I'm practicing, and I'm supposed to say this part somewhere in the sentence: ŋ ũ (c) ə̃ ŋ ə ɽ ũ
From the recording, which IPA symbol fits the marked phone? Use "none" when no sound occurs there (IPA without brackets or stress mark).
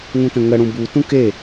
t